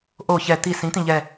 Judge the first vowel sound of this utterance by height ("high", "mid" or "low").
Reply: mid